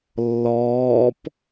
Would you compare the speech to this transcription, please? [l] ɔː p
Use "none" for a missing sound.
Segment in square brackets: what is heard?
lː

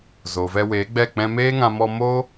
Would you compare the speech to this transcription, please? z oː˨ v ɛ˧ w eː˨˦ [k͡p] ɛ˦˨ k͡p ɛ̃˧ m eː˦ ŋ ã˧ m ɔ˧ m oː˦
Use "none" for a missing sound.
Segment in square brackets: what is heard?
ɡ͡b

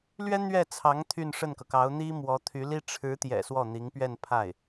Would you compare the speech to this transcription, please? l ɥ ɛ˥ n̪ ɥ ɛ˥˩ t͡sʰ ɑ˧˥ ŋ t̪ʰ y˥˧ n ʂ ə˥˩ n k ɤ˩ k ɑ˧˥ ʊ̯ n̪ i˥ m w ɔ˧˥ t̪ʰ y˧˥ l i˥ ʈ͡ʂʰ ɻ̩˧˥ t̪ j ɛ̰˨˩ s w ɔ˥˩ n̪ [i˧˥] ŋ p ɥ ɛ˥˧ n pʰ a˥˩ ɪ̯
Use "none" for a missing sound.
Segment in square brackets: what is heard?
i˧˥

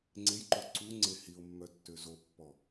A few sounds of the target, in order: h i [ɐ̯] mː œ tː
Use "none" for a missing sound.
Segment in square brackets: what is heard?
o̯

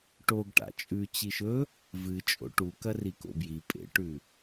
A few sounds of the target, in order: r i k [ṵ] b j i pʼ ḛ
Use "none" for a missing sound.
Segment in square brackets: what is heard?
o̰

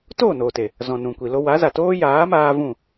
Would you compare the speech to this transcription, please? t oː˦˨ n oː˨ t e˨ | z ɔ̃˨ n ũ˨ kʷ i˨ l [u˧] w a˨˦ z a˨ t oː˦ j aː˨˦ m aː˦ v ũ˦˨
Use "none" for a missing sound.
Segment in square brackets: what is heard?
o˧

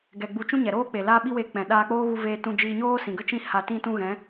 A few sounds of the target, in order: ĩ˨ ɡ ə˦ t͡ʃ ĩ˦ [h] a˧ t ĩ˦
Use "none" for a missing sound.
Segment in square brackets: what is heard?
h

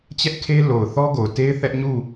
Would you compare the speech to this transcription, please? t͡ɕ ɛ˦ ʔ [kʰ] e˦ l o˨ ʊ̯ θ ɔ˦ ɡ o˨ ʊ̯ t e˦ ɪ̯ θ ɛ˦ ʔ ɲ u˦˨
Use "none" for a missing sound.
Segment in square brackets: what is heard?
kʰ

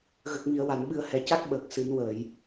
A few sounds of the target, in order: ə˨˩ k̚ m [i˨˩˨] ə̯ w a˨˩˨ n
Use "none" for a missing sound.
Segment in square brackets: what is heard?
i˨˩˨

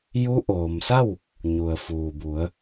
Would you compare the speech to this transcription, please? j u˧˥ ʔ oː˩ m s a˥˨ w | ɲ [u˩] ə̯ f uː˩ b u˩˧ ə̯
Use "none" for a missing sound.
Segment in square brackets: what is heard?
u˩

